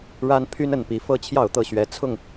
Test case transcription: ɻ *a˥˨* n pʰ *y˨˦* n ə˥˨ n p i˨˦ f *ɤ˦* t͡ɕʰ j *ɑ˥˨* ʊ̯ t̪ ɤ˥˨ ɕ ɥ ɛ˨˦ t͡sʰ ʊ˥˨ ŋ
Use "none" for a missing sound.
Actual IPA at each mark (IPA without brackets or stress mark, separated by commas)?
a˦, y˦, ɤ˦, ɑ˥˨